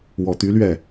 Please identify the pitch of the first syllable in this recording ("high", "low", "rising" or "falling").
low